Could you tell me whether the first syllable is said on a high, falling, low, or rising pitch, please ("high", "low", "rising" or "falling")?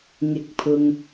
rising